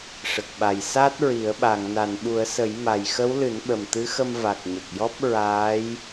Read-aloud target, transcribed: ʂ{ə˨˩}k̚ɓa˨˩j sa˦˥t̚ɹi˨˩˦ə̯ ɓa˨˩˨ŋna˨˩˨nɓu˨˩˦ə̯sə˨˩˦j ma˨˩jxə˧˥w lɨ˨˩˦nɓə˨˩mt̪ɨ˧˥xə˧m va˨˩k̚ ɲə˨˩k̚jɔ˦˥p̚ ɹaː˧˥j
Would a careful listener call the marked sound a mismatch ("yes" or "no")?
no